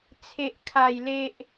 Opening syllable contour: low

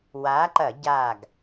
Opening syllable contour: rising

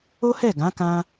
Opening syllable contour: high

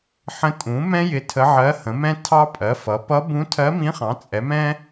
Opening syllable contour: rising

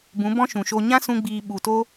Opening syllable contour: rising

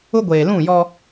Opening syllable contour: high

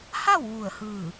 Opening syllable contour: falling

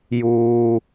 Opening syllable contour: high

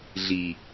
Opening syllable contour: low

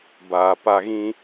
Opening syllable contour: low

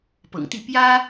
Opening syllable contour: low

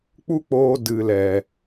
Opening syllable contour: high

